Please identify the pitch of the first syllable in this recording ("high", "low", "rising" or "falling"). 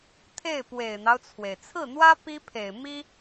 falling